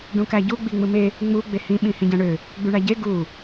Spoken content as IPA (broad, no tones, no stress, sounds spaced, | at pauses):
ɖ ũ k æ ɟ u ɡ͡b i ŋ͡m ɯ m e | ŋ͡m u ɡ͡b e h ĩ ɓ ĩ h ĩ ɟ æ̃ ɳ ø | ɡ͡b y ɳ æ ɟ e ɡ u